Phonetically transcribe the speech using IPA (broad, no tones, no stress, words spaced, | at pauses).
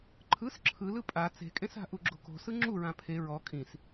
ǃʰɯs ǁʰɯlɯ pʼa t͡se̤kʼẽsa̤ ʔuɡ͡ǁo̤ko̤sɯ ŋ͡ǁuɹã pʰe ɹɔ kʼĩs